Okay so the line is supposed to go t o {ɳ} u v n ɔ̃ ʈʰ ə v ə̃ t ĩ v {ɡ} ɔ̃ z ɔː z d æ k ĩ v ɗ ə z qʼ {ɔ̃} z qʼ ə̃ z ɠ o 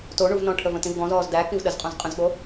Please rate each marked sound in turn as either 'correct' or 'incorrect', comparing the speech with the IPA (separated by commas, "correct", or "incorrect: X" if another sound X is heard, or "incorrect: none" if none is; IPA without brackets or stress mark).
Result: correct, correct, correct